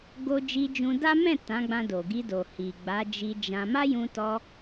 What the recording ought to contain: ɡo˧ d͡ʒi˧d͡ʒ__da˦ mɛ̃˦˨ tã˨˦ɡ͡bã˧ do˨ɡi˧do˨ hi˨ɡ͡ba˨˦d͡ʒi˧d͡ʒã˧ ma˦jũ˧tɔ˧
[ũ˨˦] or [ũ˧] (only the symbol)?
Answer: ũ˧